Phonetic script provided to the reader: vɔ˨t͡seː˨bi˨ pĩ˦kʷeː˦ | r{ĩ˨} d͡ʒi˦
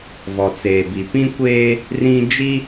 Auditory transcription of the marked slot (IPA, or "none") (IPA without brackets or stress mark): ĩ˦